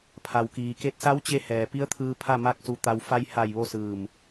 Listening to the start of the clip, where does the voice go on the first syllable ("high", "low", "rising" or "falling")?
low